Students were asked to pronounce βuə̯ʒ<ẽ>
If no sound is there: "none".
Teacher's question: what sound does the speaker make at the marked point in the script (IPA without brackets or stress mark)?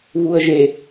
e